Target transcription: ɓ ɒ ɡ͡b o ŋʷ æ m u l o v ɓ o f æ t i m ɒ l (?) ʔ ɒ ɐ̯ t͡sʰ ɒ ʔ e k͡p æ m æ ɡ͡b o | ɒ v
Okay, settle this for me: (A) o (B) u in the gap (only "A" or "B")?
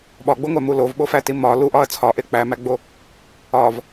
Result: B